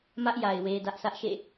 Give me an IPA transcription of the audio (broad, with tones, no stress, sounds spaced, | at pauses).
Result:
m ä˦ ʔ j a˨ ɪ̯ w e˦ d ä˦ ʔ s ä˦ ʔ ʃ ḛ˦˨